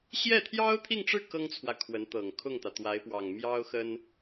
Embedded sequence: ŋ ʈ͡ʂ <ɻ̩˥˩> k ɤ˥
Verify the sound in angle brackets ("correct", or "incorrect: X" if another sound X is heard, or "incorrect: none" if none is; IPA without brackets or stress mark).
correct